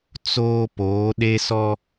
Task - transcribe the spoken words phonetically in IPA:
t͡s oː˦ p oː˨˦ ɗ e˦ s ɔ˦

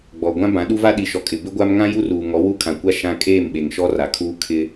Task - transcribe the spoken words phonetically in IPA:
ɡ͡b ɔ˨ ɡʷ ã˦ b ã˨˦ ɗ u˦ v a˦ ɗ i˨ ʃ ɔ˨ kʼ ɪ˨ b ɪ˦ ɡʷ a˦ m ŋ ã˦ j u˦ r uː˨ ŋ ɔ˨˦ w u˦ kʰ ã˨ kʷ a˦ ʃ ã˦ kʼ eː˦˨ m ɓ e˨ ŋ ʃ ɔ˦ r a˨ kʰ uː˦ kʰ ɪ˦

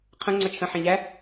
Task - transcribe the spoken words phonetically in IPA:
qʰ ə̃ ŋ͡ǀ ʌ t͡ʃʰ ə̃ ħ ɛ̃ ʎ æ

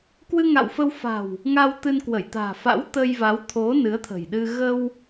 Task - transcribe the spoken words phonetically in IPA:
k w ɨ˧ ŋ a̰˧˨ w f ə˧ w f a̤˨˩ w | ŋ a˧ w t̪ ɨ˧ n k w ə˧˩ j t̪ a̤ː˨˩ f a̰˧˥ w t̪ ə˧ j v a˨˦ w t̪ʰ o˨˦ n ɨ˨˦ ə̯ t̪ʰ ə̤˨˩ j ɗ ɨ˧ ɣ ə˧ w

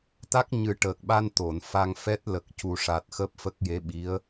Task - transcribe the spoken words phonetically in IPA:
t̪ a˦˥ k̚ ɲ ɨ˨˩˦ ʈ əː˨˩ k̚ ɓ a˧ n t̪ o˨˩˨ n f a˧ ŋ f ɛ˦˥ t̚ l ə˨˩ k̚ c u˨˩ ʂ a˨˩ t̚ x əː˦˥ p̚ f ə˦˥ k̚ j e˧˥ ɓ i˧˥ ə̯

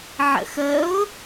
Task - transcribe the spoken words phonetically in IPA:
ʕ ə̰ x ə ʊ̯

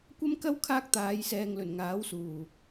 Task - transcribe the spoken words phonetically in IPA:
kʷ ɐ˥ m k ɐ˥ w kʰ aː˥ k̚ t̪ aː˨˧ j s ɛː˨ ŋ l ɵ˨˩ n ŋ aː˨˥ w s uː˨˩

